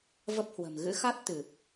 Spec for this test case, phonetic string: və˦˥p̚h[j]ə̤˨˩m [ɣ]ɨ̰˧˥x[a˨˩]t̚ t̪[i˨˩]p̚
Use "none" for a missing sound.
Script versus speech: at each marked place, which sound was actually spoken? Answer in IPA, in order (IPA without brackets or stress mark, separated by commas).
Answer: w, ɣ, a˦˥, ɨ˨˩